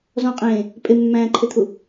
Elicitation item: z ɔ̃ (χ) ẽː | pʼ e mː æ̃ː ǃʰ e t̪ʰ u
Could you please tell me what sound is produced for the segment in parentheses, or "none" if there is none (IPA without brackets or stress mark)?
qʼ